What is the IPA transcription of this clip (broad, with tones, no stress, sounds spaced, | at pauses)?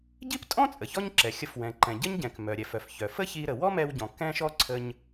ɟ i˥ p tʼ ɔ̃˥ t͡sʼ ə˩ ç ɔ˥ ɲ ǁ ɛ˩ xʲ ə˧ f w ɛ̃˩ ǃ ɛ̃˩ ɟ ə˥ ɲ ɟ ɛ̃˩ k m œ˩ ɾʲ ɛ˩ f œ˩ f ç œ˩ f ə˥ ç i˧ ɾ ə˩ w ɔ˥ m ɛ˧ w ɟ ɔ̃˩ k ɛ̃˥ ʃ ɔ˥ ǀʰ ə˧ ɲ